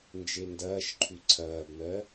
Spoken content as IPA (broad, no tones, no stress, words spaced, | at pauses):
nd͡ʒendɐːʃǃʰʉ ǀʰɐːbmɜ